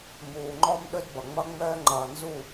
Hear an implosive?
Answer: yes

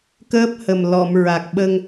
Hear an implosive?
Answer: yes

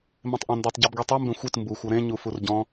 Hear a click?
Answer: no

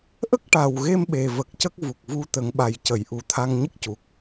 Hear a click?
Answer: no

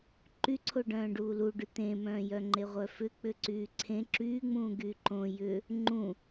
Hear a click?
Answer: yes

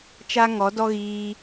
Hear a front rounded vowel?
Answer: no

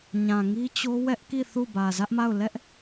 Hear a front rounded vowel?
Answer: no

